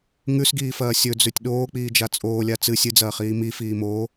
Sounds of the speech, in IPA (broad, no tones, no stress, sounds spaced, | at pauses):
ŋ ʉ s ɡ iː f ɐː sʲ ɵ d͡z ʉ tʲ ɗ oː k͡p iː d͡ʒ a t͡sʼ oː lʲ a t͡s ɨ sʲ ɨ d͡z ɐː χ iː m i f iː m oː